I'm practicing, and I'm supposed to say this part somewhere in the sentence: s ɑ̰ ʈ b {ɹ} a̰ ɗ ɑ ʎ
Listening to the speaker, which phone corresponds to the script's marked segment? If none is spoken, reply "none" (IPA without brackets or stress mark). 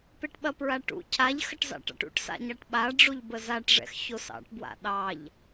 w